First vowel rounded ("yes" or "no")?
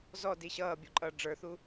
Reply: yes